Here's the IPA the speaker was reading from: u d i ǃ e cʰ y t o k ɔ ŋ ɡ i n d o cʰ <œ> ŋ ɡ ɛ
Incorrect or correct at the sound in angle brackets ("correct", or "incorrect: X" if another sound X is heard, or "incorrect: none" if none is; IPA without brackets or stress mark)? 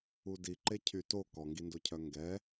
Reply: correct